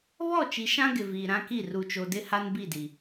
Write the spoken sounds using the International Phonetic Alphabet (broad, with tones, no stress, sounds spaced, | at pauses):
β ɔ˦˨ t͡ʃ i˨ ʃ ã˦ ɡ ɪ˨ v iː˨ ɾ ã˦ k i˦˨ r u˨ t͡ʃ o˨ d ɪ˦ h a˦ n b i˦˨ d i˨